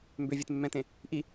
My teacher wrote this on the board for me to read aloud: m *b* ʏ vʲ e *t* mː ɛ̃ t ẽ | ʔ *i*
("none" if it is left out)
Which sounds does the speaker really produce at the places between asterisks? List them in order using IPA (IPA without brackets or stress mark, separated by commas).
b, t, i